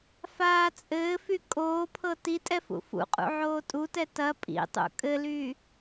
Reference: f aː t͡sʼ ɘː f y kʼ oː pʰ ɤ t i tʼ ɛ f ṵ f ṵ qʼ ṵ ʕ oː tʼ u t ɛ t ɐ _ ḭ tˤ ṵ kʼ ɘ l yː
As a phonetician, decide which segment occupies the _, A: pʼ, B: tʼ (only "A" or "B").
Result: A